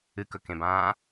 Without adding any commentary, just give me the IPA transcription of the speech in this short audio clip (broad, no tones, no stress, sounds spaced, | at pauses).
ɨ k ɵ k ẽ b ãː